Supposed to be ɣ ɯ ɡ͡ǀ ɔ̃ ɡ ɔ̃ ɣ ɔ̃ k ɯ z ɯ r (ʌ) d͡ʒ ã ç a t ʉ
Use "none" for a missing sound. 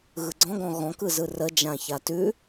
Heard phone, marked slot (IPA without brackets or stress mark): ə